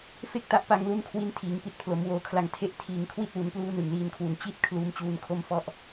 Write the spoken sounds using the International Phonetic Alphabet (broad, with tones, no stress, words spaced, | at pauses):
fe˥˩k̚ta˦˥ʔpa˧ŋlu˦˥n kʰwi˧ntʰiː˩˦ŋ pi˨˩t̚pʰlo˩˦mwoː˨˩kʰla˨˩ŋ tʰe˦˥ʔ tʰiː˨˩ŋkʰwi˥˩t̚wu˩˦npluː˦˥ nɯ˨˩ŋliː˧nkʰwu˨˩n t͡ɕi˥˩t̚ kʰluː˧mt͡ɕuː˦˥nkʰo˥˩m fɔ˥˩ʔ